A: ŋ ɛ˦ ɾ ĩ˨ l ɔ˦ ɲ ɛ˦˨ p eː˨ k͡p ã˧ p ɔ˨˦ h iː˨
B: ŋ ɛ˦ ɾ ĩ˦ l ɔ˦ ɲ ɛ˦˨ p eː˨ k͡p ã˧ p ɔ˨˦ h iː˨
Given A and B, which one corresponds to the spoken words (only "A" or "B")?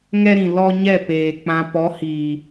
A